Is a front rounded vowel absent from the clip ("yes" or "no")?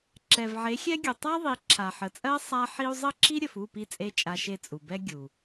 yes